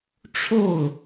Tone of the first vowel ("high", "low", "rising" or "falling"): falling